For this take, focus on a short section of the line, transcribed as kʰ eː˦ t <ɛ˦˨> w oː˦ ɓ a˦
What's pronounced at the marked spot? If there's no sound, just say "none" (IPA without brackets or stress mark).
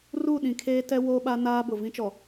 ɛ˦